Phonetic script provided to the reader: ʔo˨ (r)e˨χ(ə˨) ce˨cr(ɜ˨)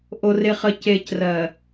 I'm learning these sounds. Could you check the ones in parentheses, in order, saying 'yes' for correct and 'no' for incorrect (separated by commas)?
yes, yes, yes